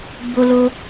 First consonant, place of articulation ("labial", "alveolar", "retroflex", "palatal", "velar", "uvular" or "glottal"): labial